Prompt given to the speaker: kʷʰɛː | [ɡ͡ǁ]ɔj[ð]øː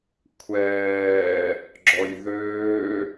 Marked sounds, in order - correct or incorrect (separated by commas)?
correct, correct